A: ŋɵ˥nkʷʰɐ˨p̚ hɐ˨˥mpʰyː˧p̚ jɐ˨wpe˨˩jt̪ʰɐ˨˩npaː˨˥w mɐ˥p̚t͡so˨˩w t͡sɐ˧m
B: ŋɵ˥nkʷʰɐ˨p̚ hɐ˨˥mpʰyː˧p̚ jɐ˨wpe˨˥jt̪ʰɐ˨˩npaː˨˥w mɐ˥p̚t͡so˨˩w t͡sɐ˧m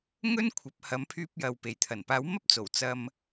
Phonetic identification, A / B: A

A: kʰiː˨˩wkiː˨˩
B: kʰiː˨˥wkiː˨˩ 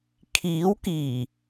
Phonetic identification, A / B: B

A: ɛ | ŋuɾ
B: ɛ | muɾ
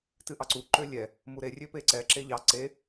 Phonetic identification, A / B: B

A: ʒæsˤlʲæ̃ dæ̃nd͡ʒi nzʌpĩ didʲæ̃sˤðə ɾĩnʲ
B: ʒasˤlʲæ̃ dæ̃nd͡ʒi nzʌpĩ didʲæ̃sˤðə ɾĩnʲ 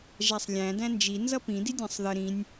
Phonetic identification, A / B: A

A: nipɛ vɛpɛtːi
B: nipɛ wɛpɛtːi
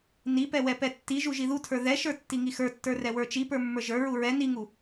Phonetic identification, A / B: B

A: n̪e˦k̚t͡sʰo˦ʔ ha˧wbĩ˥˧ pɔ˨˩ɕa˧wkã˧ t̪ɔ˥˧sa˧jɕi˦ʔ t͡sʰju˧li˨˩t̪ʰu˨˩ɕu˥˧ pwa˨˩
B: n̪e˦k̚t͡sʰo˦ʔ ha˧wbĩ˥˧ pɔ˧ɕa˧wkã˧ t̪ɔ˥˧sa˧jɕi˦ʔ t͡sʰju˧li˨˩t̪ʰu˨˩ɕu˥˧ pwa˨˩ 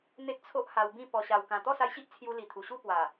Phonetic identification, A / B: B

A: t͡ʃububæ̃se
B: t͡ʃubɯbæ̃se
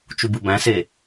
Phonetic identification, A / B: B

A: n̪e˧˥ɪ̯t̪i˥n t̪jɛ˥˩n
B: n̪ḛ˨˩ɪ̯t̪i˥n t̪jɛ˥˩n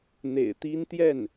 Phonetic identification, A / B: B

